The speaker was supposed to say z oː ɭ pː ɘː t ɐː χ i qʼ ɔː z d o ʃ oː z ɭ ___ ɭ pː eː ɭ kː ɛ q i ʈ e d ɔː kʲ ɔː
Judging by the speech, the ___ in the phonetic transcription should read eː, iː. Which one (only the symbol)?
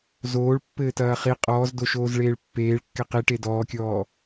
eː